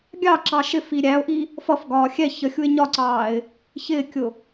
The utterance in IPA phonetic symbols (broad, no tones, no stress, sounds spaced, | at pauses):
ɡʲ ɑ ǁ ɑ ʃ ɪ f i ɾʲ æ ʊ̯ ʔ i | f ʌ f ɡ ɒː xʲ ɛ ç ə xʲ u ɪ̯ ɲ ɒ ǀ ɑː ɪ̯ | ç ɪː kʲ ʊ